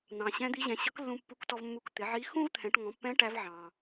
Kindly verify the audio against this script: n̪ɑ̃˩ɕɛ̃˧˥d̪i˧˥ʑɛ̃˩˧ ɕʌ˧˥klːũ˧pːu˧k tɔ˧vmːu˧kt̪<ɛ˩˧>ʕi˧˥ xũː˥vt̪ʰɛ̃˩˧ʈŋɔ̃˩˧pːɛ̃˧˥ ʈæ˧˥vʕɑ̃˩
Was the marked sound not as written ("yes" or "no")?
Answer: yes